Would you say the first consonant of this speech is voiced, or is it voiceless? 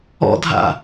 voiced